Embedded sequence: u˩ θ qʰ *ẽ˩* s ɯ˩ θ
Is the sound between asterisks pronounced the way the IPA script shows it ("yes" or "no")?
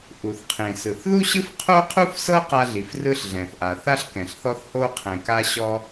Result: yes